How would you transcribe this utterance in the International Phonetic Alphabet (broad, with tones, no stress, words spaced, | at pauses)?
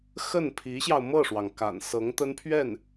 xə˥˩npʰi˧˥ɕjɑ˧ʊ̯ mɤ˥˩ʂwɑ˩ŋ ka̰˨˩nsɤ˧˥ŋt̪ə˥npʰɥɛ˥˩n